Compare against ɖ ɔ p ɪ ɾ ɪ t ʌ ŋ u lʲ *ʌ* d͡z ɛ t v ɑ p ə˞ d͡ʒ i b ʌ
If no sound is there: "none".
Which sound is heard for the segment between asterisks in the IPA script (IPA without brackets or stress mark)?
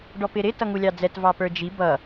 ɑ